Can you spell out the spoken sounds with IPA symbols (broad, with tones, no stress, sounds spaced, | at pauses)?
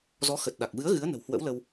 z ɔ˨˦ x ə˨˩ t̚ ɗ a˨˩ k̚ v ɨ˨˦ ə̯ ɣ ɨ˨˦ ə̯ n ə̤˨˩ w h w ə̰˧˥ w l ə˧ w